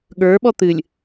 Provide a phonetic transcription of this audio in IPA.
ɠ ə˞ ɓ ɔ t̪ ɨ lʲ

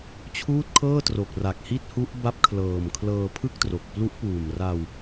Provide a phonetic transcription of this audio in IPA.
t͡ɕʰ uː˥˩ t̚ kʰ ɤː˥˩ t r o˨˩ k̚ r a˨˩ k̚ h i˥˩ t̚ h u˦˥ ʔ b a˦˥ p̚ kʰ l ɤː˨˩ m kʰ l ɤː˧ pʰ ɯ˥˩ k̚ t r o˨˩ k̚ p l u˦˥ ʔ p uː˨˩ m r a˧ w

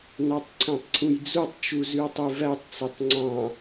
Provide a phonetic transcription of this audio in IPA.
n ɑ tˤ ǀʰ æ̃ tˤ ǀʰ ũ j d͡z u tˤ t͡ʃ u z y o̯ tˤ y v æ tˤ t͡s ø tˤ ŋ͡ǀ ɑ̃

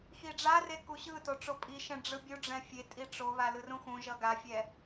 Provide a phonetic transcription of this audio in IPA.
x i ɖ͡ʐ a r e k u ɕ ɯ t o ʈ͡ʂ o pʼ i ʃ ɛ̃ ɖ͡ʐ ɯ bʲ u ɖ͡ʐ ɛ̃ fʲ e tʼ i ʈ͡ʂ o β a l ɯ r ũ x ũ ʒ ʌ ɡ a fʲ ɛ

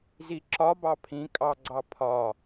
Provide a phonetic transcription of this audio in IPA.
z i ǁ ɒ b ɑ pʰ ĩ kʼ ɑ ɡ͡ǀ ɑ pʰ ɒ

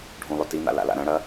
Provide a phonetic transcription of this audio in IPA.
ɖʱ ũ lˠ ɵ t i n̪ a̰ l a̰ l a̰ ɾ ɐ̃ ɽ ɐ

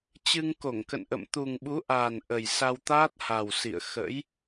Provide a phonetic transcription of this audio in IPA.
t͡ɕ ɨ˧ ŋ k o˧˩ ŋ k ə̰˧˨ n ʔ ə̰˧˨ m t̪ u˨˩ ŋ ɓ u˨˦ ʔ aː˨˩ n ʔ ə˨˩ j s a˧ w t̪ aː˦˥ t̚ h a˨˩ w s ḭ˧˨ ə̯ x ə̰˧˥ j

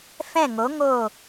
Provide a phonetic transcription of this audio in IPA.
f ɛ̃˦˨ ŋ o˨˦ ŋ oː˦˨

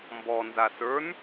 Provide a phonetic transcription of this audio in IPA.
m b ɔ n z a s ə˞ n

